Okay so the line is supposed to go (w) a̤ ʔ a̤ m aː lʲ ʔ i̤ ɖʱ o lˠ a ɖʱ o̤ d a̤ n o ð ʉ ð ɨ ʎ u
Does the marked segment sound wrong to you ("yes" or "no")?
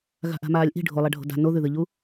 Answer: yes